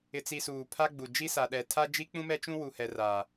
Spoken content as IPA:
ɪ˨t͡si˨ suː˨pʰa˦ɡ͡bu˨ d͡ʒi˦sa˨ ɗɛ˨tʰa˦ d͡ʒi˦k͡pũ˦mɛ˦ t͡ʃũ˦wu˨hɛ˨ ra˨

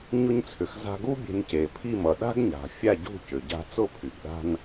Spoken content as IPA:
ɲʊ˧ɲt͡sʰʏ˩x za̤˧ɡu˥ bʲe̤˧nce˩ pʰi˥˩mʌ˩ ɗa̤˥ɡɲa̤˩ fʲa˥˩ɟṳ˥˩cʏ˩ ɟa̤˧t͡sʊ˥˩ pʰy˩ɡɗa̤˥n

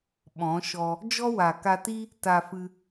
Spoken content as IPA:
ɓɔ̃˨˦ʃɔ˧ | d͡ʒɔ˦wa˨ka˧ti˦ | ta˧fɨ˧

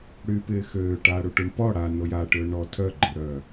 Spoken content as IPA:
ɽyːpɪːxøːʈaː ɽuʈuɳpɔ ɽa nojaʈøːɳ ɔ tʰœɡ͡ǃøɽœː

